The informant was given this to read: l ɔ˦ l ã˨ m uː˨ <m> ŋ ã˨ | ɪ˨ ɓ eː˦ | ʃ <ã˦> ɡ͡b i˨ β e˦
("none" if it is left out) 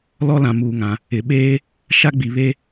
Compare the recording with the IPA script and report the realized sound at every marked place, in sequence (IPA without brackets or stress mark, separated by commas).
none, a˦